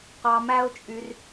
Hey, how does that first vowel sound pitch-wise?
low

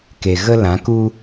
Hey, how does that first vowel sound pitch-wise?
low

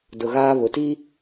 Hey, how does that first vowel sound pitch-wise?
low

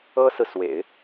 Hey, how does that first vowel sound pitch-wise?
high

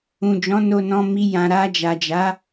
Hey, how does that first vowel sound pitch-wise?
low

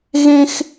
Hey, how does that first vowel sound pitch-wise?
high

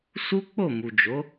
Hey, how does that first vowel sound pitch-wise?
high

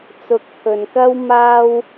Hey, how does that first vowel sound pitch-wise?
low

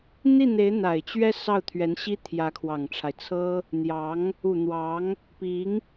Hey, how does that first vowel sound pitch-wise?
falling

